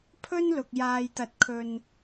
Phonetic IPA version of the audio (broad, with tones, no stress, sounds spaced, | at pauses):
pʰ ɵ˥ n l ʊ˨ k̚ j aː˧ j t̪ ɐ˧ t̚ kʰ ɵ˧ n